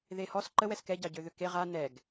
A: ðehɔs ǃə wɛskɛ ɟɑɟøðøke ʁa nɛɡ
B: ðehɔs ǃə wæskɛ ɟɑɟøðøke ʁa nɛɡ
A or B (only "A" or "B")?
A